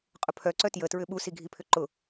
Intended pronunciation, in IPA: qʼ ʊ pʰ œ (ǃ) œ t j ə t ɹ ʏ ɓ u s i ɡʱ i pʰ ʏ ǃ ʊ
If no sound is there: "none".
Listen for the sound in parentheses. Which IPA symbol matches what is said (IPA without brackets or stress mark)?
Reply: ǀ